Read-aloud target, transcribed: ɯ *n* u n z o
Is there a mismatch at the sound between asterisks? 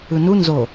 no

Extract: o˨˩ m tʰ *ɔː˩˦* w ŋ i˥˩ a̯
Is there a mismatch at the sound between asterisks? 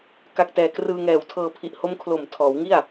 no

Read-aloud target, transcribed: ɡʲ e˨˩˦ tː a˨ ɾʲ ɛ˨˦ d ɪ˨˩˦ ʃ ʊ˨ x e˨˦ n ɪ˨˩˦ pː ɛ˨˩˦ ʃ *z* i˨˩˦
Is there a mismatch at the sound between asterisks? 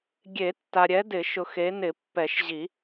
yes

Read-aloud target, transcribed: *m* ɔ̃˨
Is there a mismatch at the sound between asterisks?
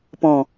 yes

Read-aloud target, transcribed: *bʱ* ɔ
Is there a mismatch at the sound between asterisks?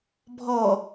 no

